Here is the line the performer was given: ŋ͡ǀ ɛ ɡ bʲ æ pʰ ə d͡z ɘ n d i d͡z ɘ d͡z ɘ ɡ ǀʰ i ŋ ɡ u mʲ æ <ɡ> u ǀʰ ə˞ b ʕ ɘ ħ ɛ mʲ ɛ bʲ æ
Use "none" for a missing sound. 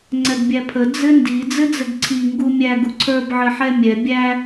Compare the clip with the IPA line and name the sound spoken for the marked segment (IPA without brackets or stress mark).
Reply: ɡ